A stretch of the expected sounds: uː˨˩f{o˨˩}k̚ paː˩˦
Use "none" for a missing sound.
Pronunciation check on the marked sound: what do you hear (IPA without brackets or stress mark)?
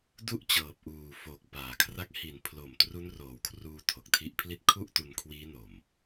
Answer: o˨˩